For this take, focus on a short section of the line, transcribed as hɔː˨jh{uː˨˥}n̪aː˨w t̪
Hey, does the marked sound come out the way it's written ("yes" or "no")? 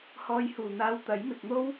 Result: no